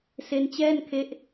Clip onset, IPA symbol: s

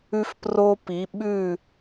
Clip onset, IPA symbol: ʉ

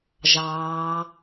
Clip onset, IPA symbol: ʒ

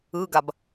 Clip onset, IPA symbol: ɯ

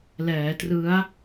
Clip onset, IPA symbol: l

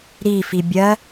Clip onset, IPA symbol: ɾ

